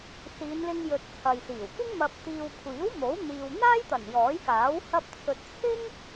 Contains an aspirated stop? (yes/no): yes